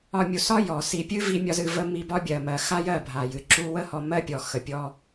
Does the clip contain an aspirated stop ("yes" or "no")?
no